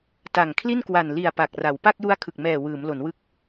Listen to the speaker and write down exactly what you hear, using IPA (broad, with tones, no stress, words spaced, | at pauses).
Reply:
ta˨˩ŋkʰli˥˩n kwa˨˩nli˨˩a̯ pa˨˩k̚ra˩˦w pa˥˩k̚ju˦˥a̯ kʰɯ˨˩k̚mɛː˨˩ wɯː˩˦mlo˩˦nwɯ˦˥k̚